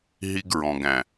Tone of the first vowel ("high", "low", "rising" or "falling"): high